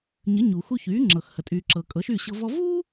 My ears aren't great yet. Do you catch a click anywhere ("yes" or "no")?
yes